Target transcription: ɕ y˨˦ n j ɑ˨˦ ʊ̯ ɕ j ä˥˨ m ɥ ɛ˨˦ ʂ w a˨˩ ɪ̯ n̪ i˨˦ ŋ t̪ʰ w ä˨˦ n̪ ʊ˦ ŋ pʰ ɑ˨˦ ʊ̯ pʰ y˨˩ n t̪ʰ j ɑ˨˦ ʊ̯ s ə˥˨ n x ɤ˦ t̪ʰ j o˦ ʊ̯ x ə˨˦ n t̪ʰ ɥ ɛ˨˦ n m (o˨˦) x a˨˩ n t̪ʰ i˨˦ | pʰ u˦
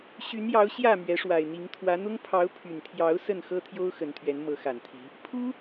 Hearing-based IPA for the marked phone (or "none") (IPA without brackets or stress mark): ɤ˨˦